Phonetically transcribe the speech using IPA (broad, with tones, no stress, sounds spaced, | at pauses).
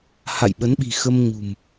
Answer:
h a̰˧˨ j ɓ ə˨˦ n ɓ i̤˨˩ x ə˧ m ɲ ṳ˨˩ m